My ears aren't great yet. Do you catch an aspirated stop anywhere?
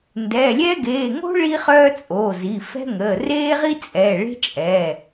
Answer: no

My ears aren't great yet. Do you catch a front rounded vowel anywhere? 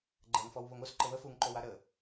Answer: no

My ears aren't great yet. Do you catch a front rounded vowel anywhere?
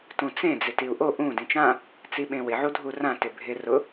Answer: no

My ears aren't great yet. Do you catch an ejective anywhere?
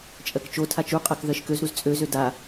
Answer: yes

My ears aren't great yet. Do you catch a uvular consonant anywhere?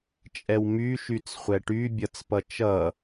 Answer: yes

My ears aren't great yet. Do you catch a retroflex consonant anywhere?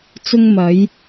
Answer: no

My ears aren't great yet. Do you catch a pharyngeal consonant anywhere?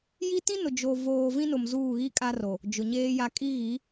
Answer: no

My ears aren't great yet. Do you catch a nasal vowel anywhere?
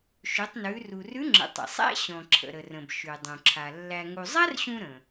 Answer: yes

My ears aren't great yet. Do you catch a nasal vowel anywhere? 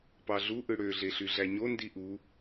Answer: no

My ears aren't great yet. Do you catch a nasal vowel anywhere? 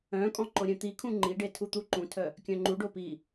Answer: yes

